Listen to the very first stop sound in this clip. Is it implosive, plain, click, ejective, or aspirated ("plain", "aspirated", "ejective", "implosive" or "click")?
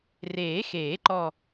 click